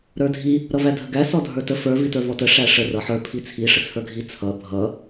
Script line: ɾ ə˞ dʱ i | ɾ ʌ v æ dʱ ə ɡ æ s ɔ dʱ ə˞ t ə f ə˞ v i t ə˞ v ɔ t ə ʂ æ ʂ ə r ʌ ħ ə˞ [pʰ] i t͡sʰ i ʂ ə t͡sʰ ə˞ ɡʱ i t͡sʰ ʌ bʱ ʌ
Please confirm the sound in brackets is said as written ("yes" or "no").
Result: yes